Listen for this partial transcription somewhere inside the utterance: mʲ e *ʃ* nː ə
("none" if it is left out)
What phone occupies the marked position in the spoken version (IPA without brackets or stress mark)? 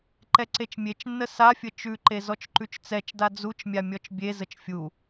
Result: t͡ʃ